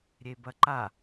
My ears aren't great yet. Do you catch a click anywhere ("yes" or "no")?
yes